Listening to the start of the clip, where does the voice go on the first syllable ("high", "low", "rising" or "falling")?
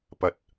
rising